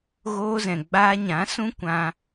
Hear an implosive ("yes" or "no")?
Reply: no